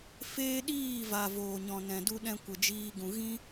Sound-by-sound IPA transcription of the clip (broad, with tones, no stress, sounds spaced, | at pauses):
f eː˦ ɗ iː˦˨ v a˨ v oː˨ ɲ ɔ̃˨ n ɛ̃˨ d u˧ ɗ ɛ̃˧ kʷ ə˨ d͡ʒ iː˧ ɡ ũ˨ ɣ ĩ˦